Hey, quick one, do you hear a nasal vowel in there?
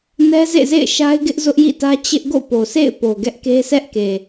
no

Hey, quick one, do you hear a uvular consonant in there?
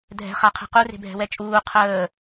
yes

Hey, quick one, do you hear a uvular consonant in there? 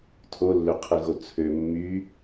yes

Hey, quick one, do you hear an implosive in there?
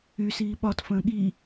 yes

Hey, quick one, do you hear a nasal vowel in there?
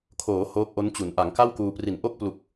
no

